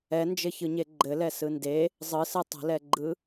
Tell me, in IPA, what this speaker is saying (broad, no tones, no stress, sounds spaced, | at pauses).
ɛ n d͡ʒ ɘ ç ɯ ɲ e ɡ͡ǃ ɘ l ɛ s ɯ n d e | zˤ ɯ s ɯ tˤ ə̤ l ɛ ɡ͡ǃ ɯ